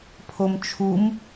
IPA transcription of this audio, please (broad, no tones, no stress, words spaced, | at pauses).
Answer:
pʰomt͡ʃʰum